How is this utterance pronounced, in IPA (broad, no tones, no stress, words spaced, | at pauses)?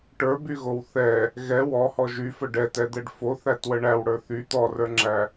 ʈə˞byɣow θɛ | ɣɛ wɔhɔ ʒyfə ɖɛtɛd̪ɛɖ foθætwə ɳæwɽə˞ θy t̪ɔrə˞ŋ͡ǁæ